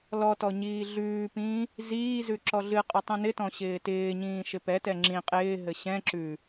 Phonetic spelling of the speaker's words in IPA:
l ɔ t ɔ ɲ iː ɮ ʉː p ĩː | z iː z ʉ ǁ ɔ ɮ ɨ qʼ ɪ tˤ ĩ n ɪ t ɔ̃ ɕ ɪː t ɪː ɲ ĩː ʃ ɪ p ɛ t ɛ ŋ͡ǁ ĩ qʼ ɪː ɦ ɘ ɕ ɛ̃ ǁ ʉ

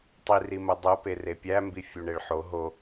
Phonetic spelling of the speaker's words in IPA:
tˤ i r i m o dˤ o p e r e pʲ æ m b i fʲ u ɳ e ɭ ħ o ɦ o

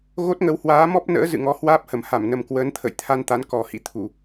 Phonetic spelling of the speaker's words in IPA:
ɣ o˦˥ t̚ ŋ ə˨˦ w h w aː˨˦ m ɔ˦˥ p̚ n ə̰ː˧˥ z ɨ̰˧˨ ŋ ɔ˨˦ h w aː˦˥ p̚ h ə˨˩ m h a˧˩ m n ə˨˩ m k w əː˨˦ n t̪ʰ ə̰˧˨ j t̪ʰ a˧ n t̪ a˨˦ n k ɔ˨˩ h ḭ˧˥ t̪ʰ u˧˩˨

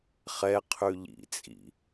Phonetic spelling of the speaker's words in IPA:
χ ɛ qʰ ʉ ʎ ḭ t͡sʼ ḭ

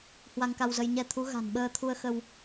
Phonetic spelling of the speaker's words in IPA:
h w a˧ ŋ k a˧ w z ə˧ j ɲ ɛ˧ t̪ʰ u˨˦ ɣ a̤˨˩ n ɓ əː˧ t̪ʰ u˧ ə̯ x ə˧ w

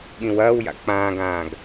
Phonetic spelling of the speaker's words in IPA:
ɠ ĩ w ɐː w j a̰ k͡p ãː ɡ ãː ɡ

